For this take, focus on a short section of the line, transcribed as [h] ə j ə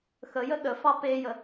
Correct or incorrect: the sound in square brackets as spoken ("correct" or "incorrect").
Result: incorrect